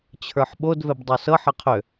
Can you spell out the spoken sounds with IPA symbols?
t͡ɕʰ ə˞ ħ ɓ o d v ɛ b dˤ o s ɤ ħ ʌ qʰ ø

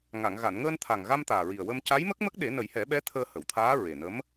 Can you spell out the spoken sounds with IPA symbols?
ŋ a˨˩˨ ŋ ɣ a˨˩˨ n ŋ əː˧ n t̪ʰ a˨˩ ŋ ɣ a˧ m t̪ aː˨˩ ɹ i˨˩ ə̯ w ə˧ m c a˧˥ j m ə˦˥ k̚ m ə˦˥ k̚ ɗ e˨˩˦ n ə˨˩˦ j h ɛ˨˩˦ ɓ ɛ˧˥ t̪ʰ əː˧ h ə˨˩˨ w t̪ʰ aː˧˥ ɹ e˨˩ n ə˧˥ m

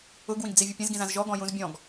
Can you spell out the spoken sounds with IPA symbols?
ʊ ɡ w ĩ ɡ d͡z i vʲ ʊ pʲ ẽ z ɡ ĩ z ã z ʒ ɔ ɡ ɔ̃ j ũ z bʲ ɔ̃ ɡ

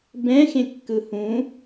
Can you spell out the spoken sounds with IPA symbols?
b ɛ̃ x ẽ kː ɯ h ũ

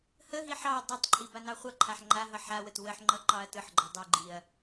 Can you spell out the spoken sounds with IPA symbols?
h ə ɦ i ħ ɑ ɐ̯ dˤ ʌ tˤ ǃʼ i b a n ɑ χʷ ʌ ǃʰ a ħ ŋ͡ǃ a ɦ ʌ ħ a w ə t w ə ħ ŋ͡ǃ ʌ ǃ ɑ ɐ̯ t ɯ ħ ɡ͡ǃ ʌ dˤ i ɡ͡ǃ i ɐ̯

